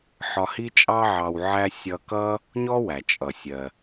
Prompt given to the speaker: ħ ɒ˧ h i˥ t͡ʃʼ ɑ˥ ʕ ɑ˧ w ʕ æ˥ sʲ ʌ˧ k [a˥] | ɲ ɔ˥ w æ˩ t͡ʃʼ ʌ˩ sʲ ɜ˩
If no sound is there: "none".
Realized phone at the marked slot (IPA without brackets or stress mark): ʌ˥